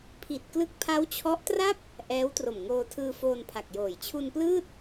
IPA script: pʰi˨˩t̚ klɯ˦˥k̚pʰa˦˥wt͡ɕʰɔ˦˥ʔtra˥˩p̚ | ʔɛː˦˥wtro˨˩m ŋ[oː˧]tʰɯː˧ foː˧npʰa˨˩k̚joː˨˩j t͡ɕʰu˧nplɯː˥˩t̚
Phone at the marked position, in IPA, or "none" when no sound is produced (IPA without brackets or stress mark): oː˧